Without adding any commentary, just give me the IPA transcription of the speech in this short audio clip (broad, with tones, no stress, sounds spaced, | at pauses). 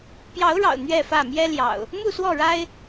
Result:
p j ɑ˨˦ ʊ̯ ɻ ɑ̰˨˩ ʊ̯ n̪ ɥ ɛ˥˨ f ä˥˨ m j ɛ˦ l j ɑ̰˨˩ ʊ̯ | m u˥˨ s w ɔ˥˨ ɻ a˦ ɪ̯